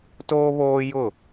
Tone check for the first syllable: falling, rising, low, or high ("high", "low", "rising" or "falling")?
high